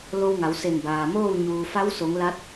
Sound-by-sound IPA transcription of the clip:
lo˧wŋa˩˧w se˧˩nbaː˩moː˥˨w ɲuː˩fa˧˥wso˩˧ŋ la˧˥t̚

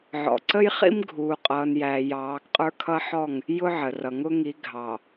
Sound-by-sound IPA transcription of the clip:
ʕɔ̰˨ǀə˦jχḭ˦m ɡʱuː˨qʼʌː˨njæː˨ jɑː˨˦ɡqʼə˞˦kʰʌ˦ħɔ˦˨ŋ | jʊ˦ʕə˨rʌ˨ ŋʊ˦ŋi˨˦ ɡʱɑ˨

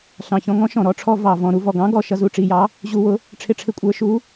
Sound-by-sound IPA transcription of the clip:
ɬɑ̃˨˩çɔ̃˧ŋɔ̃˧˥ʃɔ̃˨˩ ɾɔ˧˥ʈ͡ʂʰɔ˧ vɑ˨˩vɔ̃˨˩ ɾu˧vɔ˨˩ɡɑ̃˧˥ ɡɔ˨˩ ʃʌ˧zu˧ʈ͡ʂi˨˩jɑ˧˥ | ʑu˧wʊ˧˥ | ʈ͡ʂʰɪ˧ʈ͡ʂʰɪ˧kʷʼə˞˧˥ʃu˧˥

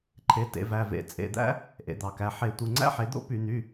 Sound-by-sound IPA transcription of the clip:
ǃʰe˩˥tḛ˩˧ væ˩˧˩vḛ˧˩˧ t͡sʼḛ˩˧˩d̪æ̰˥ | ʔḛ˩˧d̪ɑ˩˧kæ˩˧˩ ħe˧˩˧ tʷɯ˩˧˩ŋ͡ǀæ̰˥ħe˩˥ d̪o̰˥py˧˩˧n̪y˩˧˩

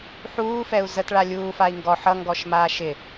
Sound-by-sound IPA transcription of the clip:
ħuːfɛu̯ zətɭa lʲuːfai̯ ŋɡɔ ħʌŋɡɔʃmaː ʃɪ

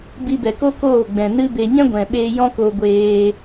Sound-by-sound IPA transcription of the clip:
bi˧bɛ˨ko˦ koː˦˨ɡ͡bɛ̃˨nɨ˦be˧ ɲɛ̃˦ɡʷɛ̃˨ɓeː˧ jɔ̃˦ko˧ ɡʷeː˧

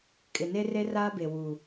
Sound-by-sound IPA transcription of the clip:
kʼɪ˨ne˦re˦ raː˦be˨ wu˨

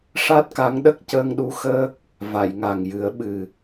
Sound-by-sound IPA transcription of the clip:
ʂa˦˥t̚ka˧˥ŋɗə˦˥k̚ cəː˧ŋɗu˧˥ xəː˦˥k̚ | va˨˩˨jŋa˨˩ŋjɨ˨˩˦ə̯ɓɨ˨˩

